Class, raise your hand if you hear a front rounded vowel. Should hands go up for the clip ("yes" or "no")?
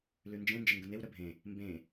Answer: no